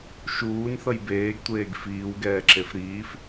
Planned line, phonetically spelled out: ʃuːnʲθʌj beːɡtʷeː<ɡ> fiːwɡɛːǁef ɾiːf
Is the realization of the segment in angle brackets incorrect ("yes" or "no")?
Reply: no